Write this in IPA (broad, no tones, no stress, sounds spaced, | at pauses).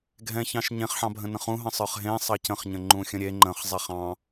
ɡʱ ɛ̃ ç ɑ̃ ʃ ɲ ẽ χ ħ ɑ̃ bʱ ə̃ n ə̃ χ ũ ɦ ə̃ sˤ ə˞ χ ɦ ẽ sˤ ɑ c ə̃ χ ɲ ə̃ ŋ͡ǃ ũ xʲ ə̃ ɾʲ e ŋ͡ǃ ə̃ χ zˤ ɛ χ ɑ̃